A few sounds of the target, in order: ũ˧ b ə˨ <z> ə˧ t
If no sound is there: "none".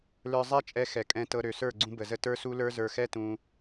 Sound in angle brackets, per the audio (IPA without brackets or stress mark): z